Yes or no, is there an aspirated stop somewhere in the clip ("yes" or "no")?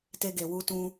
no